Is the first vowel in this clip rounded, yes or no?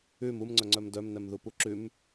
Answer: yes